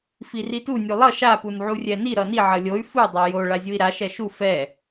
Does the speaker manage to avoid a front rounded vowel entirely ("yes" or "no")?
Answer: no